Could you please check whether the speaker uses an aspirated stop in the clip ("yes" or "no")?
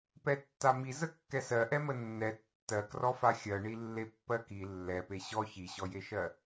no